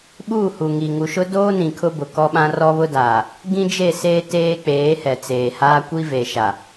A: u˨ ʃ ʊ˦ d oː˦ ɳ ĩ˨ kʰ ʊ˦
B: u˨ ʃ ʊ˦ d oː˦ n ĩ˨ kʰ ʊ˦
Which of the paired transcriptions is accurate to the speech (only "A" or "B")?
B